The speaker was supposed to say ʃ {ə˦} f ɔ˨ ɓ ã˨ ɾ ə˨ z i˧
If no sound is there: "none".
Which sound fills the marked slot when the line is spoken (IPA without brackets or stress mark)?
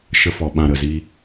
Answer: ə˧